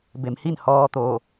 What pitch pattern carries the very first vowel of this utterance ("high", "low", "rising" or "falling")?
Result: low